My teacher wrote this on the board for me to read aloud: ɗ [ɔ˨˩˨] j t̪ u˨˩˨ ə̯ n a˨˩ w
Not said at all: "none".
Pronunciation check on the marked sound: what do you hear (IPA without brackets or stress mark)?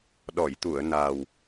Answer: ɔ˨˩˨